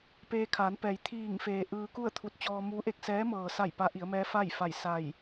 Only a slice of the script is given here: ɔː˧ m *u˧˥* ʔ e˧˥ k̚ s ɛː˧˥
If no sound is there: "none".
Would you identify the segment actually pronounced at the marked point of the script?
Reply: u˧˥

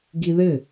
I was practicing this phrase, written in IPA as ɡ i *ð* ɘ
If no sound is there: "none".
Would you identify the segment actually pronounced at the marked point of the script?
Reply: ð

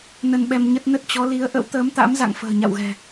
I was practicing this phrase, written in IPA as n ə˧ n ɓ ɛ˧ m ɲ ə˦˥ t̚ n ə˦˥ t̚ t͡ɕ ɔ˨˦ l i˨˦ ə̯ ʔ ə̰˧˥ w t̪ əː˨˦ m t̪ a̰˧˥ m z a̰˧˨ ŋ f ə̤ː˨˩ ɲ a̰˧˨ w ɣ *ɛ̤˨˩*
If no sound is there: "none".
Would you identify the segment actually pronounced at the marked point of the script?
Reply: ɛ̤˨˩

